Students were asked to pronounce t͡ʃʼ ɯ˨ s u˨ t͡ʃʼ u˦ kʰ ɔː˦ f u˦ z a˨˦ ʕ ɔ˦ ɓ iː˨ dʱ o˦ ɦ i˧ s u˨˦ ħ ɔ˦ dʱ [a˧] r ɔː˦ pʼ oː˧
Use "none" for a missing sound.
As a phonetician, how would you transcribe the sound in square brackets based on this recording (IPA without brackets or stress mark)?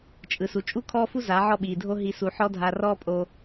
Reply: a˧